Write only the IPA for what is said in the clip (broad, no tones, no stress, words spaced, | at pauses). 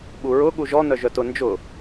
ɓuɹʊ ɠuʒɔ nœʒœtʊ nd͡ʒʊ